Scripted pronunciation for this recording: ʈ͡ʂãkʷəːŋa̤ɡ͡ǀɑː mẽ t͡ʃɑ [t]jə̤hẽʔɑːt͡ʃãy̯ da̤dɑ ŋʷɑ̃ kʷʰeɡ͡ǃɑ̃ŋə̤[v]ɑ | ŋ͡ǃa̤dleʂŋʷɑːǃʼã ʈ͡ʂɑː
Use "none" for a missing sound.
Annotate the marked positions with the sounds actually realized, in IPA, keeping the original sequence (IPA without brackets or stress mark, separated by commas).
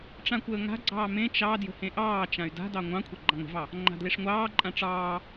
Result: d, v